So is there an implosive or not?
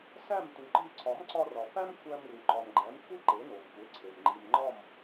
no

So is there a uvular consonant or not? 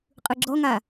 yes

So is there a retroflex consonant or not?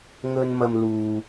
no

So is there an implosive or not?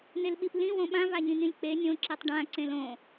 yes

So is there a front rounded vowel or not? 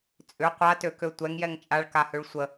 yes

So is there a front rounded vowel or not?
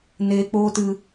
no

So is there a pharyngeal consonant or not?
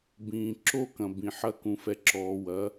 yes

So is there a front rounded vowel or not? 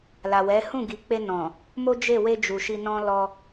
no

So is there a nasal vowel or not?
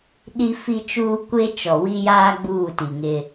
no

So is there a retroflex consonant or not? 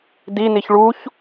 yes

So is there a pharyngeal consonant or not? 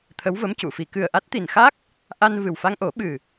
no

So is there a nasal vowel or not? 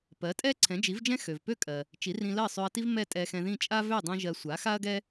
yes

